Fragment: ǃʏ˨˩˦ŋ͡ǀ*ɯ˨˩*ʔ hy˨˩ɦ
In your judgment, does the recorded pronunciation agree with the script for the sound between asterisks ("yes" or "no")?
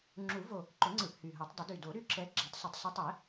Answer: yes